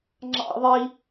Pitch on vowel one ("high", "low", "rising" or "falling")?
high